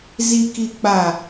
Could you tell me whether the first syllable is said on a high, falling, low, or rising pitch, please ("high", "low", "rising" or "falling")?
low